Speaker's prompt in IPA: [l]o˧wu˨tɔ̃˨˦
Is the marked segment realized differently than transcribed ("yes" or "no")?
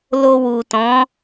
no